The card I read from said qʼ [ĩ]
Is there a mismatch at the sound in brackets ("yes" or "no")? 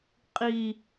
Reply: yes